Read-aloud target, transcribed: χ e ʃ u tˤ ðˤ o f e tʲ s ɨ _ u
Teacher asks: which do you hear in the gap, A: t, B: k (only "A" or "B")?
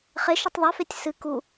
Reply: B